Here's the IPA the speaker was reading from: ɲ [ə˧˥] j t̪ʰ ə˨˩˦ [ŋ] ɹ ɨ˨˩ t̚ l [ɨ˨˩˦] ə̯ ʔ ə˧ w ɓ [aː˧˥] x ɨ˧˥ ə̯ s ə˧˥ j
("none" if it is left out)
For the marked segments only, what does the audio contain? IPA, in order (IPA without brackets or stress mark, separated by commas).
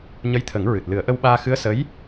ə˧˥, ŋ, ɨ˨˩˦, aː˧